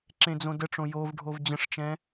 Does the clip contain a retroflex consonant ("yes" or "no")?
yes